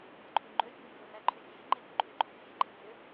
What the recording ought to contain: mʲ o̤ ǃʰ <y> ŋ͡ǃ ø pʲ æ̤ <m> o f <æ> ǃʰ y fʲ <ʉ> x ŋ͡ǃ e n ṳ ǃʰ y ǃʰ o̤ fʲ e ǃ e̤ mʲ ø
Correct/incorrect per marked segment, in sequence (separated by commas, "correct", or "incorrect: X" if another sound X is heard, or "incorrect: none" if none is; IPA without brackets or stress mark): correct, incorrect: mʲ, correct, incorrect: ø